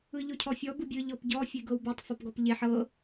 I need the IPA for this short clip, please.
ɯ ʎ o cʰ ɔ fʲ ɔ b ɯ bʲ ɯ ʎ ɔ p ɟ ɔ fʲ e ɡ ɤ w b e tˤ f ɔ p ɡ ɔ p ʎ e ħ ɤ

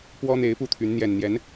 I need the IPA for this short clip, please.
p w ɔ˥ n̪ e˧˥ ɪ̯ p u˥˩ t̪ʰ y˧˥ n n̪ j ɛ˨˩ n n̪ j ɛ˧˥ n

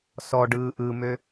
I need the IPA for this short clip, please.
s ɔ ɖ ɯː ʔ ɯ m ø

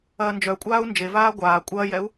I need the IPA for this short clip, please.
ɐː n d͡ʒ œ kʷʼ aː u̯ n d͡ʒ e v aː ɡʷ aː kʷʼ ɐː j ɛ u̯

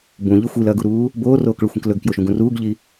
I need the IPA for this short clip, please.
b ũ ʎ ɨ xʷ i l ɐː ɡ u ɾ uː | b oː r oː k ɭ ɵ xʷ ĩ k l ɵ ɡ k j o ʃ ũ ɡ ũ r uː ɡ ʎ i

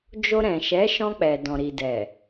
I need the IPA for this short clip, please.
d͡ʒ o˧ ɾ ɛ̃˨ ʃ ɛ˨˦ ʃ ɔ̃˧ k͡p ɛ˨ d ɔ̃˨ ɾ i˨ d ɛ˨

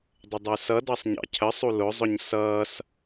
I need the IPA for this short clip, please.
dˤ ə dˤ ə˞ s ʌ d ɑ sˤ ɲ ɑ̰ cʰ ə sˤ u l ʊ zˤ ʊ ɲ s ʌː s

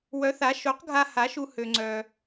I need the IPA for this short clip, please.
w œ˨˥ θ a˨˥ ʃ o˨˥ q ɡʱ a˧ h a˨˥ ʃ u˧ h ø˧ ŋ͡ǀ œ˧

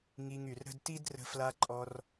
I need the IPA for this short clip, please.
ŋ i˧ ŋ y˨ r ɾ ə̤˦ d t i˦ d r ə̤˧ f l a˧ ǃʼ ɔ˧ r

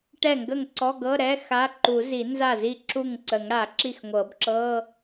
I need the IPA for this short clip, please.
ʈ ɛ˥˩ ŋ ɡ ə˥˩ ŋ ǀ ɔ˧˥˧ ɡ ɤ˧˥˧ ɾ ɛ˧˥˧ x a˧˥˧ ǃ u˨˩˦ z i˨˩˦ n z a˥˩ z i˥˩ ǁ u˥˩ ŋ ǀ ə˨˩˦ ŋ ɽ a˨˩˦ ǁ i˥˩ x ŋʷ ɤ˨˩˦ b ǁ ɤ˧˥˧

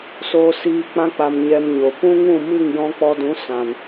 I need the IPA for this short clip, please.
s oː˧ s iː˧ k͡p ã˧ k͡p a˨ m ɲ ɛ˧ m ɲ o˨ p ũ˦ ŋ ũ˦˨ m ɨ˦˨ ŋ j ɔ̃˧ k͡p ɔ˧ d ũ˨˦ s ã˨ n

